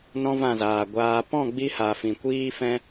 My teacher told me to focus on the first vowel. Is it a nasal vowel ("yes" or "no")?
yes